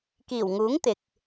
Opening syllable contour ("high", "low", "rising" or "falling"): low